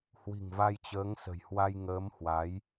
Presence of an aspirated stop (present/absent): absent